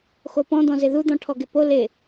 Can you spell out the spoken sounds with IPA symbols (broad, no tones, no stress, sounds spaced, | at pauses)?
x o p ɔ̃ d̪ ɔ̃ z ɪ ð u d̪ ɔ̃ ʈʰ ɔ ɡ ɪ p o l ɪ